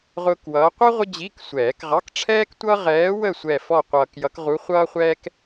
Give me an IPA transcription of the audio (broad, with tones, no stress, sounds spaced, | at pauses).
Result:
ʁ ʊː˥ k w ʌː˧˥ qʷ ʌ˥ ʁʷ ə˥ d͡ʑ i˧˥˧ k sʷ ɛː˨˩˦ k ʁ ɑ˧˥˧ k ʈ͡ʂʰ ɛː˥ k tʷ ʌ˥ ʁ ɛː˧˥ w ə˥˧ sʷ ɛ˥˧ f ɔ˥˧ qʷ ʌː˧ k j ʌ˧˥ k ʁ u˧˥ χʷ ʌː˥ χʷ ɛː˥ k